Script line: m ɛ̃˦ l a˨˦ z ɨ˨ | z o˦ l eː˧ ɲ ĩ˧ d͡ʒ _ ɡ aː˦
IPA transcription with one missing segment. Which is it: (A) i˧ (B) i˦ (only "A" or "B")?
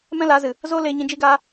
B